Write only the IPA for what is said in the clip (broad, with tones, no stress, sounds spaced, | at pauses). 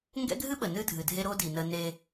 ŋ ɡ ɛ̰˦ ɡʱ ɨ˦ ɓ ə˨ n ɨ˦ dʱ ɨ˨ dʱ e˦ ɾ o˦ d i˨ n ə˦ n e˦